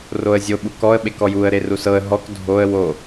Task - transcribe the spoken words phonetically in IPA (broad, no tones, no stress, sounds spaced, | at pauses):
r o ə̯ zʲ o ɓ u k ɔ ə̯ ɓ e k ɔ j u ə̯ ɾ e r u s ɤ ə̯ ɦ ɔ k dʱ o ə̯ w o